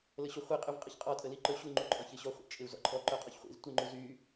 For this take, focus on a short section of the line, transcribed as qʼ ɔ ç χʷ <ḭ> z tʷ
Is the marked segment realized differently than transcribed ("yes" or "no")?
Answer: no